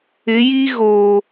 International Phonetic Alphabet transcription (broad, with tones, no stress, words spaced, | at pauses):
ɪ˨˦ji˦ ɣoː˨